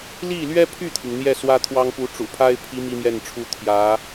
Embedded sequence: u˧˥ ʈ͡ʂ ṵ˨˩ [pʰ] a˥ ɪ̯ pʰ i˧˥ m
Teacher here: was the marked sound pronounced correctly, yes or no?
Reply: yes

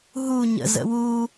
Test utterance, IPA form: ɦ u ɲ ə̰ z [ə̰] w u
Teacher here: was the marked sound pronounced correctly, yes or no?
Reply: yes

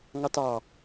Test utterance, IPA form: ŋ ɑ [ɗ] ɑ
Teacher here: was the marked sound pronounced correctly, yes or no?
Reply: no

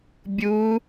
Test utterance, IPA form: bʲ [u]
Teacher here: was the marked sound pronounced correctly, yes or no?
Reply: yes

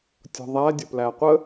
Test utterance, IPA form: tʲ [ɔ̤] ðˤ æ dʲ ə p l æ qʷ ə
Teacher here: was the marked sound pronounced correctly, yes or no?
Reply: yes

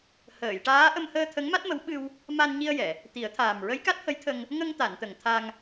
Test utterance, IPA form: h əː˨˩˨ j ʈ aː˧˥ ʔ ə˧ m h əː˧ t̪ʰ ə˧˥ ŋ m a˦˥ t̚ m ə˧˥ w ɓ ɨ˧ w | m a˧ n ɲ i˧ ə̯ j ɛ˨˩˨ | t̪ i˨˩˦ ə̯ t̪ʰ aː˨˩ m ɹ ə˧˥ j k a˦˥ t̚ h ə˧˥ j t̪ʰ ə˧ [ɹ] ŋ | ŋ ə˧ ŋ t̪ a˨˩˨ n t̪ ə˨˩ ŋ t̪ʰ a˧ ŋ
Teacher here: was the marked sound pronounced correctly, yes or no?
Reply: no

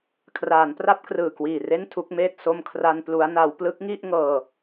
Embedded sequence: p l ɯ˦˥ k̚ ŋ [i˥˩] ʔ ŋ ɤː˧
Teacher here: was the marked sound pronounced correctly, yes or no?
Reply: yes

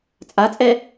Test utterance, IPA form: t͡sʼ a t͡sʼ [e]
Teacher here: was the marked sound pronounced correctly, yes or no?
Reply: no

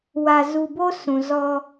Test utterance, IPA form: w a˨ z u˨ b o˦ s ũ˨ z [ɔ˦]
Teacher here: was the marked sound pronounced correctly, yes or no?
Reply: yes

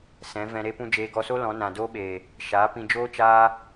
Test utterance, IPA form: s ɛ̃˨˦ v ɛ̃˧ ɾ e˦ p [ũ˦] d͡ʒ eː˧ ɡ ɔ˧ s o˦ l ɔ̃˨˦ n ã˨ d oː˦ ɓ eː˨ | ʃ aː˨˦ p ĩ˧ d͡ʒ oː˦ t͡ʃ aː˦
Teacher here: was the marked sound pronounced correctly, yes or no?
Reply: yes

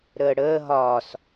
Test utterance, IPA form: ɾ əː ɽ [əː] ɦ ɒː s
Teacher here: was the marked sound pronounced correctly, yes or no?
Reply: yes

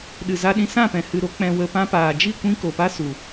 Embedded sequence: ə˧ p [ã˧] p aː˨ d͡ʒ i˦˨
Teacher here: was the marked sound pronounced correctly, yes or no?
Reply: yes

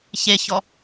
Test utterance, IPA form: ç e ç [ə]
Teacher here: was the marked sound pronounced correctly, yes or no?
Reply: no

